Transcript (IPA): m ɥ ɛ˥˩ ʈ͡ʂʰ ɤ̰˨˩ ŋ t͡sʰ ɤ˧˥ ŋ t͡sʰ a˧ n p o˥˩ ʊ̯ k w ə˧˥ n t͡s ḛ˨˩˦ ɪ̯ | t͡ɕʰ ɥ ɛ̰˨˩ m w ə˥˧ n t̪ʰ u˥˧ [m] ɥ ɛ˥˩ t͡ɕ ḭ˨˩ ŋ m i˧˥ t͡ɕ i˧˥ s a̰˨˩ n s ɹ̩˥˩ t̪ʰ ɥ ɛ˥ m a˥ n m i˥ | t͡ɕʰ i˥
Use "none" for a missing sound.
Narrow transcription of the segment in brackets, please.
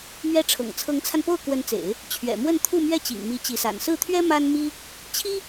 m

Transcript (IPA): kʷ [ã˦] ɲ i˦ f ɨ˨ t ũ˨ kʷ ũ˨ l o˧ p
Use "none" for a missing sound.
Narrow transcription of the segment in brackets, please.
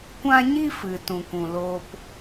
ã˦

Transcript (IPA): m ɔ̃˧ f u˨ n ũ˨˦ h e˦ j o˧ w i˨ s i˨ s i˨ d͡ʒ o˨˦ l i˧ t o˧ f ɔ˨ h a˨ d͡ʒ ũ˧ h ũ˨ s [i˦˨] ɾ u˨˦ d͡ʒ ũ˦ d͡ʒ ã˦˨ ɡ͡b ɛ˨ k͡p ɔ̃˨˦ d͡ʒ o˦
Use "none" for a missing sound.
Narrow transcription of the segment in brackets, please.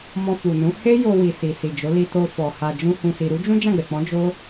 i˨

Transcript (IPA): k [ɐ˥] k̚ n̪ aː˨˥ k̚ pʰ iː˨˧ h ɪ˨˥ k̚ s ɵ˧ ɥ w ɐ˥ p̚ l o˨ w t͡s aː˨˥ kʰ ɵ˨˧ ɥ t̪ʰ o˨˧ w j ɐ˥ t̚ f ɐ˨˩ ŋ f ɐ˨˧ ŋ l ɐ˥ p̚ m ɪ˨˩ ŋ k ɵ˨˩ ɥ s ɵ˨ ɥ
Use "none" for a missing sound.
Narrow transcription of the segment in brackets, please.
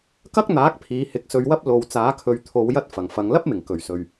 ɐ˥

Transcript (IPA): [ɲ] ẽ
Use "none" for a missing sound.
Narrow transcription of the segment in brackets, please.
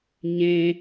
ɲ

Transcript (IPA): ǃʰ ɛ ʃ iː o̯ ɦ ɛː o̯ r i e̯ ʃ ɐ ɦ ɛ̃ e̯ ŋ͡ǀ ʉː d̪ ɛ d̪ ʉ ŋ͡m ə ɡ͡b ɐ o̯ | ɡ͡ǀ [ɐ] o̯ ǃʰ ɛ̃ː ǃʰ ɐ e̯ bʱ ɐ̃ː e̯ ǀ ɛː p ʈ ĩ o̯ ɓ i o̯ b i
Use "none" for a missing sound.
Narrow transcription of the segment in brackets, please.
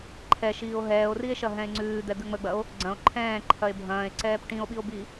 ɐ̃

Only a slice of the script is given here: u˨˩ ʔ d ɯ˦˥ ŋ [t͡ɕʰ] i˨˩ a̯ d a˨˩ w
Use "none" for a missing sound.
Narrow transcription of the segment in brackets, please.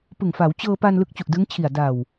t͡ɕʰ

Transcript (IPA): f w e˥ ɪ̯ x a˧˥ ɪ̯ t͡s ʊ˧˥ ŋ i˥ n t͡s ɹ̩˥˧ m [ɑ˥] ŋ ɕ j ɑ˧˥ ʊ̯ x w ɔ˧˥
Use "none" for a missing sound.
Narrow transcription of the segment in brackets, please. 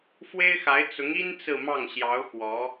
ɑ˥˩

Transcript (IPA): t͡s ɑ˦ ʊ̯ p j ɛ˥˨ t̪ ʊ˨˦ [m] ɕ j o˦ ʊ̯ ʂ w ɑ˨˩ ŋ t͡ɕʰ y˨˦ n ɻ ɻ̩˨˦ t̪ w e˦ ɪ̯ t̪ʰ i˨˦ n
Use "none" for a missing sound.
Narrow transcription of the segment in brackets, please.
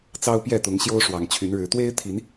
ŋ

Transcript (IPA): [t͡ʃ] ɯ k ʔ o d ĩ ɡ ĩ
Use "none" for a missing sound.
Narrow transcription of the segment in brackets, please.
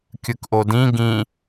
kʲ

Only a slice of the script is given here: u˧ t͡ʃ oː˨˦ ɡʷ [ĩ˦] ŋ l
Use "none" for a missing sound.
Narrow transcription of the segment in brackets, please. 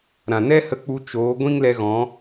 ĩ˦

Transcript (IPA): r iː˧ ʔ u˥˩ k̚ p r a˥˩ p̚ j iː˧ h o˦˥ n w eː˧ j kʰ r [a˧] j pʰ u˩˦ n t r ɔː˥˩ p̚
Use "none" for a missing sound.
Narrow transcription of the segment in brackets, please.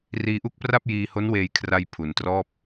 a˧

